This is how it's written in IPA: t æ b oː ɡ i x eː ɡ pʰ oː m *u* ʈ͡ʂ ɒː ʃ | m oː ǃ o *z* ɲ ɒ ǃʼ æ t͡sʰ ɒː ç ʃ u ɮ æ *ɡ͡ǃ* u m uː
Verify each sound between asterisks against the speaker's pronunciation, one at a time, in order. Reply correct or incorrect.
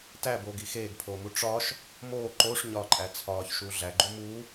correct, incorrect: ʂ, correct

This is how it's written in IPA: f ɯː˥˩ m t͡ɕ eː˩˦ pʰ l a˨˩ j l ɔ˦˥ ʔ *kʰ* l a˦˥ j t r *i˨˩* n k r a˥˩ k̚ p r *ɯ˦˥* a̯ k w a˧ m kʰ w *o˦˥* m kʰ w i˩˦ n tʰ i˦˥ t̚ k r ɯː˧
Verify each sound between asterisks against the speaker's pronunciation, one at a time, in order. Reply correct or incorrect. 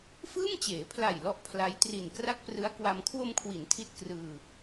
incorrect: pʰ, correct, correct, incorrect: o˧

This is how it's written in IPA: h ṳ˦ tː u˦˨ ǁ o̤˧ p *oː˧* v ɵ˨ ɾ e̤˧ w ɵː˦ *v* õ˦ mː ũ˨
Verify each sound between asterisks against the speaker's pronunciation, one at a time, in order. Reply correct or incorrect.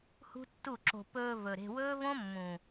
incorrect: ɵː˧, correct

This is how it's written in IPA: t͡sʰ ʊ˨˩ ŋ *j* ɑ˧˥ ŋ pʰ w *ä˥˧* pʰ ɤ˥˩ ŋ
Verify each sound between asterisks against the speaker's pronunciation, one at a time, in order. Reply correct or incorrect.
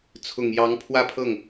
correct, correct

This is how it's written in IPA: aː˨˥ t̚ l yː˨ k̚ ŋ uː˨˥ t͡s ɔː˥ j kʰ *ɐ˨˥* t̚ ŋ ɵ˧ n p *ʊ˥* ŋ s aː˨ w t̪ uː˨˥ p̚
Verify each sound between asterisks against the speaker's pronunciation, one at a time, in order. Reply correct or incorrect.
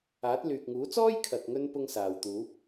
incorrect: ɐ˨, correct

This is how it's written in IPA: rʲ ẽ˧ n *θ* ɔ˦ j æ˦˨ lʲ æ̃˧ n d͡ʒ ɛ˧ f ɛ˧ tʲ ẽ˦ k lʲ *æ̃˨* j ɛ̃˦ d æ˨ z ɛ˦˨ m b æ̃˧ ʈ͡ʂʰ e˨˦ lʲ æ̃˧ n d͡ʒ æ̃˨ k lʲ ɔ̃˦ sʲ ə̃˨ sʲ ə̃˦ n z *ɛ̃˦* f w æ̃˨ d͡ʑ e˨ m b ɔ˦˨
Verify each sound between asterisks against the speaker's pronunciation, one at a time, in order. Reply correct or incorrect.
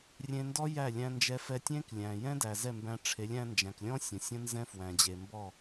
incorrect: d, correct, correct

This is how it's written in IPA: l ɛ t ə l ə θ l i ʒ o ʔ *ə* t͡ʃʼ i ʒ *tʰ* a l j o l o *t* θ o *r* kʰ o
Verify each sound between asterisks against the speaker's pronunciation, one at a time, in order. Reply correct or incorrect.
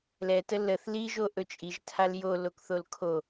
incorrect: ɵ, correct, incorrect: k, incorrect: l

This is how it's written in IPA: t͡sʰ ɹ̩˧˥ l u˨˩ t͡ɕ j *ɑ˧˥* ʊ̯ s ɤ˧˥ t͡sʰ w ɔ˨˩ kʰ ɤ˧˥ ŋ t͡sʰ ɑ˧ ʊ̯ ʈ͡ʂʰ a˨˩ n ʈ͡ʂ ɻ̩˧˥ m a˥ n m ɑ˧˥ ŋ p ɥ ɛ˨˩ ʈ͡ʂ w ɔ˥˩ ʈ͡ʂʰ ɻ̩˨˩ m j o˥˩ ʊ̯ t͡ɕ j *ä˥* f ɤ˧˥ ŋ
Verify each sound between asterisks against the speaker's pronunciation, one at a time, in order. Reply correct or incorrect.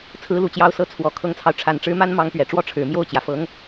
correct, incorrect: ä˩

